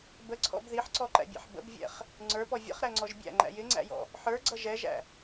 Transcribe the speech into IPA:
b ə ǀʰ ɔ̰ b ð i ħ ǀ ɔ ǃ æ̰ bʲ ɛ̰ ħ b ə̰ b vʲ ɛ̰ χ | ŋ͡ǀ ə˞ p ɔ vʲ ə̰ χ ɾ æ ŋ͡ǀ ɔ ʒ bʲ æ̰ ŋ͡ǃ æ̰ j ɪ ŋ͡ǀ æ̰ j ɔ̰ | ħ ə˞ ɡ͡ǀ ʌ ʒ ɛ ʒ æ̰

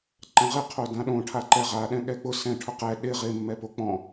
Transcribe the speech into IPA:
ǃ ã ʁ ɪ qʰ o d ã ɗ õ ʈʰ a ǃ ɛ ʁ a ɗ ɛ̃ ɠ ɛ k͡p ʊ s ɛ̃ ʈʰ ʊ q ɛ ɗ ɪ ʁ ɪ mː ɛ p o k͡p ɔ̃

